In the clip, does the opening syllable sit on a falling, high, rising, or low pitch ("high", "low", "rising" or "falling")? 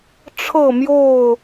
falling